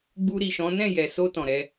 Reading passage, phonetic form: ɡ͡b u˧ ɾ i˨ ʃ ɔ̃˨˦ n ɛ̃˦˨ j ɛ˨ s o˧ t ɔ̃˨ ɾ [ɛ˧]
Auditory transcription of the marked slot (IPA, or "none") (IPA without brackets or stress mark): ɛ˧